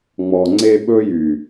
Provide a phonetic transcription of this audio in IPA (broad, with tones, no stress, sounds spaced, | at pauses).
ŋ͡m ɔ˨ ŋ͡ǀ e˦ ɓ ɵ˦ j y˨